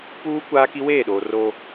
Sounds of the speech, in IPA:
puː˦ kʷaː˦ki˦weː˦˨ ɗoː˨ro˦

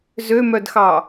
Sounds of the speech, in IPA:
zømœdxɑ

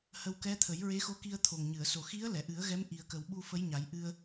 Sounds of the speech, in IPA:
hə˧wkɛ˧˥ t̪ʰə˨˩˦jɹe˧˥xo˧˥ ki˧ə̯ t̪ʰo˨˩ŋɲɨ˨˩˨ə̯ so˨˩xi˧˥ə̯ lɛ˨˩˨ ʔɨ˨˩˦ə̯ɣɛ˧˥m ʔi˨˩ə̯kə˨˩wɓu˧ fə˧˥jɲa˨˩˦j ʔɨ˧ə̯

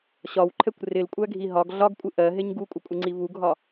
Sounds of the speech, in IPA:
ɕɒwǃʰɛkʷ rɪlkʷʼæɡʱi ɦɒɡ ɮɒɡkʷʼɪ ʔɜɦɪɲ ɡukʷʼɪkʷʼɪŋ͡ǀi vuɡʱɒ

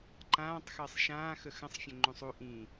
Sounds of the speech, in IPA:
ǃãːtˤxəːsˤ ʃãːxə xə̃sˤfʲə̃ ŋ͡ǃũsˤu ʔĩ

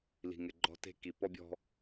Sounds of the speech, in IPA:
li̤˨ŋɪ˨ ɡ͡ǃɔ̤˦te̤˦ki˨ pɔ˦bʲɔ̤˦

